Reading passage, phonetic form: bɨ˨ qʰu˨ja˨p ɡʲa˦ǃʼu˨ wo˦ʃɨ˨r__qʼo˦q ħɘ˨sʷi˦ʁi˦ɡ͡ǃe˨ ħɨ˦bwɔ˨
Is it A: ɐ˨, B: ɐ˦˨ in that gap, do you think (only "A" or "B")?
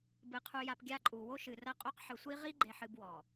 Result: B